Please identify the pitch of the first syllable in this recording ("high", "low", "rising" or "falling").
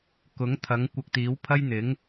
rising